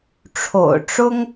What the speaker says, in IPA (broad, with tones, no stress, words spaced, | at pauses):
ʈ͡ʂʰo̰˨˩ʊ̯ ʈ͡ʂʊ˥ŋ